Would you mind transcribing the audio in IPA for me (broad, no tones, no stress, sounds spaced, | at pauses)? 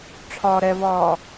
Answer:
ʈ͡ʂʰ ɒː ɾ ɛ v ɒː